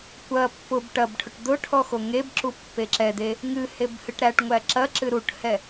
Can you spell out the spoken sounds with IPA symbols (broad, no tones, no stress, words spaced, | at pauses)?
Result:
kʷɐ pːʊb ʈɐbʈʰʊʈ d̪ʊʈʰɔ xoŋebǁu pːeǁɛd̪e | ŋɨheb hɨʈɾæʈŋʷæ ǁɐǁɨ ɾuʈhɛ